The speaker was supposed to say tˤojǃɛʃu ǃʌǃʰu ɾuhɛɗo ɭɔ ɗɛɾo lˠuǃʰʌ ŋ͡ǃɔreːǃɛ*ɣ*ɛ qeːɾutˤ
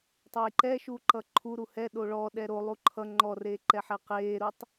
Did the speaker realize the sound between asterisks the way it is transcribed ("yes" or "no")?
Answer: no